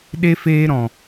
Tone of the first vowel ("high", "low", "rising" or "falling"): high